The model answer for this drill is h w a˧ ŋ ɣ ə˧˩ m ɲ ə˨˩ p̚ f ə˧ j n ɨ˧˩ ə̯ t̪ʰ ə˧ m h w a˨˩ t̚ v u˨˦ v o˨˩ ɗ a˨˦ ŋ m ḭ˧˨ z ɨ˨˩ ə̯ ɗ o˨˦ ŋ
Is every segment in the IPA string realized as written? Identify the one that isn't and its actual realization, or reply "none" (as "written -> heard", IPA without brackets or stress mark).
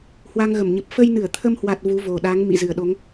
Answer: none